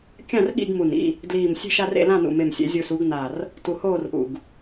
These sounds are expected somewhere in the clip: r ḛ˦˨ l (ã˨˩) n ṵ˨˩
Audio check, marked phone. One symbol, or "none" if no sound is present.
ã˦˨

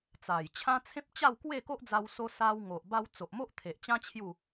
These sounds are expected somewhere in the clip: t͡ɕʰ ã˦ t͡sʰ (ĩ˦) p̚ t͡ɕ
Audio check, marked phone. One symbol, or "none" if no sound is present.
ẽ˦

